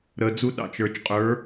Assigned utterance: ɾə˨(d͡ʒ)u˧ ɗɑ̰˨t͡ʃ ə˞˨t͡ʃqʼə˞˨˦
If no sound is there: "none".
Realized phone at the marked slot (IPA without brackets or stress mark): d͡z